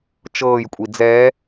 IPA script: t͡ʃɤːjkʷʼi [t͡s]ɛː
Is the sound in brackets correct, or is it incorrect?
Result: incorrect